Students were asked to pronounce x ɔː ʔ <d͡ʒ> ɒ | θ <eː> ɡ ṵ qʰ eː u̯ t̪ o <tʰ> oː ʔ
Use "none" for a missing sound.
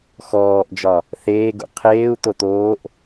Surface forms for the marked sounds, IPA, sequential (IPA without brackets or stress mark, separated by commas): d͡ʒ, eː, t̪